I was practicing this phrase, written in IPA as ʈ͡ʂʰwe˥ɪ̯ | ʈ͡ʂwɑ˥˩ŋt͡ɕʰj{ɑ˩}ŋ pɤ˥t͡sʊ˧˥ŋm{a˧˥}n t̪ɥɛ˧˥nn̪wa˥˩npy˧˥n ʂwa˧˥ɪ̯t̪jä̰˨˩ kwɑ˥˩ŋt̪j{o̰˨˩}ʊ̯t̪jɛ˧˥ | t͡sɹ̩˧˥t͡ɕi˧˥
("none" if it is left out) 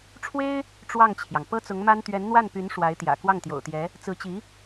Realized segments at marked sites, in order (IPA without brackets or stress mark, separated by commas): ɑ˩, a˥, o̰˨˩